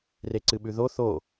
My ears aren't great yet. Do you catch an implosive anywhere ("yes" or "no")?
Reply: yes